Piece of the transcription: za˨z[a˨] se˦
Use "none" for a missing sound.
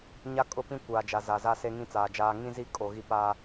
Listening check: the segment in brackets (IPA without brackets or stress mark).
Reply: a˦